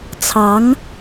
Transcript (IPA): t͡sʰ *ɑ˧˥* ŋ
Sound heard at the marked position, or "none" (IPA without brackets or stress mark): ɑ˧˥